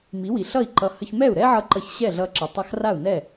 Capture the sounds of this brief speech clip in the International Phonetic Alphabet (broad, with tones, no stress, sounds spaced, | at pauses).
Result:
m i˩˥ w i˩ ɬ ʌ˥˩ i̯ ǃ ʌ˧ h ə˧ ç m ɛ˥˩ u̯ ɾ ɛ˥ ʕ ʌ˧ ǃ ʌ˧ ç ɕ ɛ˥˩ ɮ ʌ˧ ǁ ə˩ tˤ a˧ x r a˥˩ u̯ n ɛ˥˩